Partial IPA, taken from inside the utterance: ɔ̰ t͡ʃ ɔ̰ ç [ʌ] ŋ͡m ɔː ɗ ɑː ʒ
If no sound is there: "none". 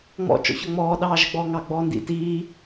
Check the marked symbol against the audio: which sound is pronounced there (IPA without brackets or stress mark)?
ɒ